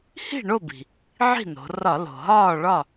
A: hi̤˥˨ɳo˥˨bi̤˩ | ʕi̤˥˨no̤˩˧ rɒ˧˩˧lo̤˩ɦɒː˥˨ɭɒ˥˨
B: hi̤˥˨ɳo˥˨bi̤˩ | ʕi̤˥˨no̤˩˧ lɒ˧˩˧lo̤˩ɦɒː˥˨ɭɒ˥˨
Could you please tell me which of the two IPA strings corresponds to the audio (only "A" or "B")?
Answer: A